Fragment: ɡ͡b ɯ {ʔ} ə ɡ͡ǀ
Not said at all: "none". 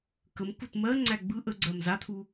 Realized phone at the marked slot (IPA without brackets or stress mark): ʔ